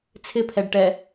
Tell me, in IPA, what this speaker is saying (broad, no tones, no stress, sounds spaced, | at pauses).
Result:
t͡sʰ ɪ pʰ ɛ ɖ ʈ ɛ